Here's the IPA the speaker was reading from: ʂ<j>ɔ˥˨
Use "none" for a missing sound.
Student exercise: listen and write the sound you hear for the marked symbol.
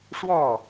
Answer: w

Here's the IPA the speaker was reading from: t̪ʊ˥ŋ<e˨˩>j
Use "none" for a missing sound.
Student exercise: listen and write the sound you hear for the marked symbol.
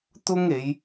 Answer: e˨˧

